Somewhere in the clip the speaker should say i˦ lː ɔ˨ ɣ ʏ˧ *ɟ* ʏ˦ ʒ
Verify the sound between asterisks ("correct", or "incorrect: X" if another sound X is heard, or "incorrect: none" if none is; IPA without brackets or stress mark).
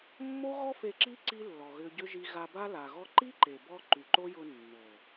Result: correct